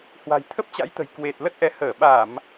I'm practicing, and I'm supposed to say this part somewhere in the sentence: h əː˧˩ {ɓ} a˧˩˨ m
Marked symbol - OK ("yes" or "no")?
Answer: yes